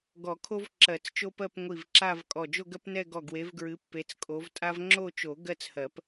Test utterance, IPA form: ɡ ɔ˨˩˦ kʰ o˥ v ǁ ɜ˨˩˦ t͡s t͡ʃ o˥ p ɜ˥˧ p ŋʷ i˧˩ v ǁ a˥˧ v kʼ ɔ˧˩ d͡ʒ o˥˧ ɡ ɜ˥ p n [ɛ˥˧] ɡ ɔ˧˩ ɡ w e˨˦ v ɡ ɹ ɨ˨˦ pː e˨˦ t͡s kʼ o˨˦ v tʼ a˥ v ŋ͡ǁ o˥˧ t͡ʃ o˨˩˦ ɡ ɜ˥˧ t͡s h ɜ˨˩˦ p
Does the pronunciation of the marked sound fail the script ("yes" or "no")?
no